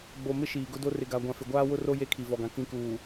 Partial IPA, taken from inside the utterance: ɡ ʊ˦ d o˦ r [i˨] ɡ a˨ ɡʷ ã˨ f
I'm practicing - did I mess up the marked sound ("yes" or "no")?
yes